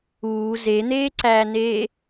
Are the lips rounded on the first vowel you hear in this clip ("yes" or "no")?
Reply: yes